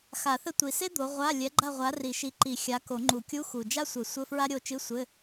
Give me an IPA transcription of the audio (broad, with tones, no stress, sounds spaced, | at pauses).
x a˨˩˦ θ ɘ˦˨ tʷ i˨˩ s e˥ d̪ o˨˦ ʁʷ a˧˥˧ lʲ ɛ˨˦ ɡ͡ǃ a˦˨ ʁʷ a˨˦ r i˨˩˦ ʃ i˨˦ ǃ i˨˩˦ xʲ a˨˦ k o˨˩˦ ŋ͡ǃ u˨˩˦ kʲ u˧˥˧ x u˨˩ d͡ʒ a˥ sʷ ɘ˨˩˦ sʷ ɘ˧˥˧ f ɹ a˥ ɾʲ o˦˨ t͡ʃ ɨ˧˥˧ sʷ ɘ˧˥˧